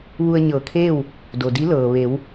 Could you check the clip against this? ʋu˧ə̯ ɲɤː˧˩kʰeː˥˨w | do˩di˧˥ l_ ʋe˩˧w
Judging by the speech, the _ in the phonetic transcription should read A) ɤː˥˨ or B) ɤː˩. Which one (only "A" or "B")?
B